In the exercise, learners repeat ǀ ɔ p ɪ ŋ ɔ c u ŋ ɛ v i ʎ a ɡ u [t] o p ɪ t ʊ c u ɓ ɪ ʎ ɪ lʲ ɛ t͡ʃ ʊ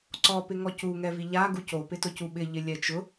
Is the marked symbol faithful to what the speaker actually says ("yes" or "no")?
no